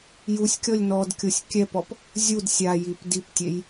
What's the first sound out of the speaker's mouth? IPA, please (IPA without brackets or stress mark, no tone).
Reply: j